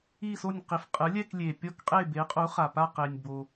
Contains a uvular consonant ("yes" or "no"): yes